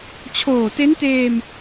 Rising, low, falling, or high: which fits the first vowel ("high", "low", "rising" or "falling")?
low